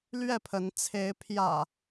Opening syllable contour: falling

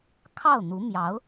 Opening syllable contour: falling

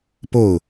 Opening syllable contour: falling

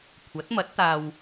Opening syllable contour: rising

